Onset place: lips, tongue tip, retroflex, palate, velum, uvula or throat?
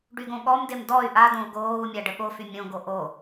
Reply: retroflex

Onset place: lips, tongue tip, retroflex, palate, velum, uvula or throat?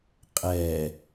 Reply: uvula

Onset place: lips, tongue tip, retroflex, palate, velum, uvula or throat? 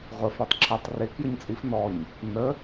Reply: uvula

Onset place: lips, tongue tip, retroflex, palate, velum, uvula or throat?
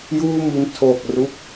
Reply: palate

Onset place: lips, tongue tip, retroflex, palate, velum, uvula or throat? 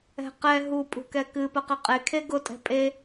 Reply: uvula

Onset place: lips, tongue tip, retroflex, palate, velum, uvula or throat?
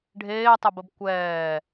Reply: retroflex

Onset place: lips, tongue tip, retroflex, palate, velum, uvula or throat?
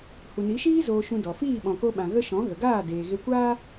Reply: throat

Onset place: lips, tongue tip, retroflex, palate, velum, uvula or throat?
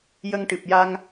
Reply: palate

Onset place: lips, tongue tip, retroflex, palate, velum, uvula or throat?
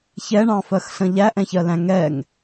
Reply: palate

